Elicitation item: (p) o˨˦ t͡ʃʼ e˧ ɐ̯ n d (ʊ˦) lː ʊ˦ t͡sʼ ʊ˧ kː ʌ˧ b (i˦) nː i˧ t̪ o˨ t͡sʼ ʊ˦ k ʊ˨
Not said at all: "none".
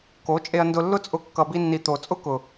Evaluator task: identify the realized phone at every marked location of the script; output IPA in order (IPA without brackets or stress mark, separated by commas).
k, ʊ˧, i˦